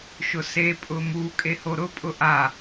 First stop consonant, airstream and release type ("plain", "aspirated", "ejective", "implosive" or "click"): ejective